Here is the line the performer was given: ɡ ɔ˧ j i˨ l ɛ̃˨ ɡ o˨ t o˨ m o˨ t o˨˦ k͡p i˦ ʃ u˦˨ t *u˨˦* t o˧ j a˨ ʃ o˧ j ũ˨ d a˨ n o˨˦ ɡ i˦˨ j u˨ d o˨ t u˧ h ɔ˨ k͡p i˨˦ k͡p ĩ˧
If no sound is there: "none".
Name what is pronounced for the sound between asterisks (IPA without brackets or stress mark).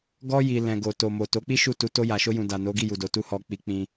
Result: u˨˦